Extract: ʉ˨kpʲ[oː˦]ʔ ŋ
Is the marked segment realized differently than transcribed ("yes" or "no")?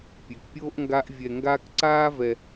no